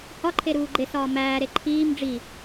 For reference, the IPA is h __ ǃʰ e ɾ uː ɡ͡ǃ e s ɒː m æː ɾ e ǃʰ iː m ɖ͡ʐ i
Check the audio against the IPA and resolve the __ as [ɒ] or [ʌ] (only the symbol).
ɒ